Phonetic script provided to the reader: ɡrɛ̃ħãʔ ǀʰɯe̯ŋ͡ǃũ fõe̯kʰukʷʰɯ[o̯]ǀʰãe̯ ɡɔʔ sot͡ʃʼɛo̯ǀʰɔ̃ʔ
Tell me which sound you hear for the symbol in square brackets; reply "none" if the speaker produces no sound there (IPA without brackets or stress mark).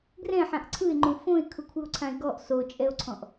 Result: o̯